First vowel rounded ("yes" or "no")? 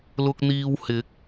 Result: yes